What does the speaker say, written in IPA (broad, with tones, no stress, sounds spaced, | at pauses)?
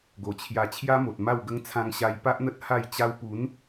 ɡ o˨˩ t͡ɕʰ j a˧ t͡ɕʰ j a˦ m o˨ t̚ m a˥˧ w ɡ ə˦ ŋ t͡sʰ ã˧ ŋ ɕ a˧ j p a˦ ʔ n̪ ə˦ t̚ h a˥˧ j t͡ɕ a˦ w p u˨˦ n